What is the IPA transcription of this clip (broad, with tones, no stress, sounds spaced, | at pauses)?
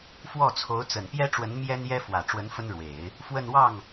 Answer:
f w ɔ˥˩ t͡sʰ o˧˥ ʊ̯ t͡s ə˨˩ n p j ɛ˥ ʈ͡ʂ w ə˧˥ n m j ɛ˥ n j ɛ˥ f w ä˨˩ ʈ͡ʂ w ə˧˥ n f ə˥ n ɻ w e˨˩˦ ɪ̯ | f w ə˥˧ n w ɑ˥˩ ŋ